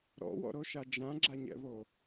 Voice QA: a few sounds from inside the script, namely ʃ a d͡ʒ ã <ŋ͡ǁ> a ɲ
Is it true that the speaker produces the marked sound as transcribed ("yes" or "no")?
no